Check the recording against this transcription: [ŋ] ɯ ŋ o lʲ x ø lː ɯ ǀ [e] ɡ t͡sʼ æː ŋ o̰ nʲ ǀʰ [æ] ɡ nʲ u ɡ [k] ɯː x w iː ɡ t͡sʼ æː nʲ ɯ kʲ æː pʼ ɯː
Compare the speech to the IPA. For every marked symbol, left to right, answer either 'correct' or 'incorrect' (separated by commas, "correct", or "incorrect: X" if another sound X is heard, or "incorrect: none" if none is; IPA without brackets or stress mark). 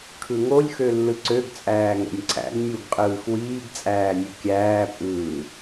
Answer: incorrect: kʰ, incorrect: ø, incorrect: æ̰, incorrect: qʼ